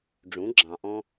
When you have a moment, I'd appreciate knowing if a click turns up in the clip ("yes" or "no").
yes